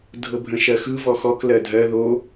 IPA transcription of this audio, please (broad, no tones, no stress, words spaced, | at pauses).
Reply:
dʱɤbʱə̃ʃɜxɯ vɔxɔk lɜdʱɜ ðo